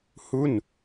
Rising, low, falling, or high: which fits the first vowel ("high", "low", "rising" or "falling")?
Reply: falling